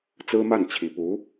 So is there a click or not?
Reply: no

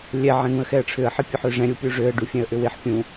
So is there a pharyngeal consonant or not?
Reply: yes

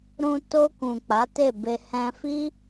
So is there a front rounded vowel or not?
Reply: no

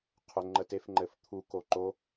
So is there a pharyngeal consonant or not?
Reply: no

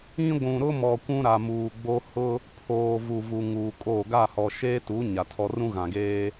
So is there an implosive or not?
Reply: no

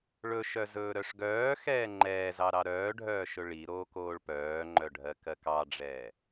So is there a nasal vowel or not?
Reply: no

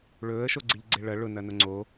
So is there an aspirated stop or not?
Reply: no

